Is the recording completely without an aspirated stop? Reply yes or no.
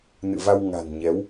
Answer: yes